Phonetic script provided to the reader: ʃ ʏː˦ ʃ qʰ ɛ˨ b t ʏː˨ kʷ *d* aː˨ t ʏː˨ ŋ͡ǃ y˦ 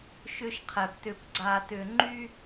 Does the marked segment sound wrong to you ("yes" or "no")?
yes